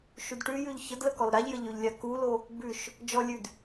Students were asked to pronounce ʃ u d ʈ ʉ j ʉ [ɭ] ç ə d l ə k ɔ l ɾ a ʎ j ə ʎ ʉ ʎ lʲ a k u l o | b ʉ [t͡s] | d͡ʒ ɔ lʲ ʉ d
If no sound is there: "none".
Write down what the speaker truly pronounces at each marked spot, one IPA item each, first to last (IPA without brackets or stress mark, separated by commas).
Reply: ʎ, ʃ